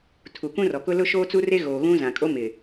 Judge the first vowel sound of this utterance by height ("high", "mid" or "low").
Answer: high